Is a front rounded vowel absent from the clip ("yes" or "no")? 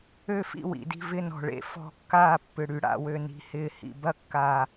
no